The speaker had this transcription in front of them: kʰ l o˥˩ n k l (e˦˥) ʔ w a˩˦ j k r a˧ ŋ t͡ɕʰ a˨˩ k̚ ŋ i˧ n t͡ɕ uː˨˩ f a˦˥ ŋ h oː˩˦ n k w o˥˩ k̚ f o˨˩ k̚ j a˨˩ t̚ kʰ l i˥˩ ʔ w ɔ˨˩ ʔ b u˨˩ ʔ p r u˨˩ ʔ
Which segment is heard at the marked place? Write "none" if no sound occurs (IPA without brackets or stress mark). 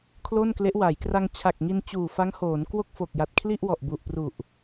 e˦˥